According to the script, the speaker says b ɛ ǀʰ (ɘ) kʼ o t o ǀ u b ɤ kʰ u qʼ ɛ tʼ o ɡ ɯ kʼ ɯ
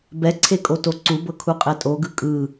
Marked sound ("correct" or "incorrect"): incorrect